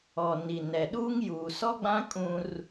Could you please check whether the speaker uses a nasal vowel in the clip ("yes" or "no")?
yes